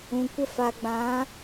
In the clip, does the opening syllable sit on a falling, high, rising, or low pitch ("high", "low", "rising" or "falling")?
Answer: low